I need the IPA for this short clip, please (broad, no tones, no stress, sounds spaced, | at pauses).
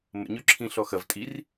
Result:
m ə̰ ɲ ø ǁʰ ĩ ɬ ɔ x ɐ v tʼ i r